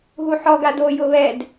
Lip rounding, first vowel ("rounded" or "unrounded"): rounded